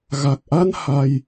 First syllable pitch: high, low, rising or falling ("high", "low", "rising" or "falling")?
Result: low